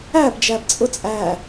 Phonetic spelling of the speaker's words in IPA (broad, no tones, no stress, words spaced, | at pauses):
æb d͡ʒæbt͡sʼʊt͡sʼæ